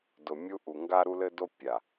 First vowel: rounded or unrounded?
rounded